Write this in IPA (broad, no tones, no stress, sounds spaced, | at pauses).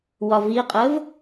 w ɒ v i qʼ ə v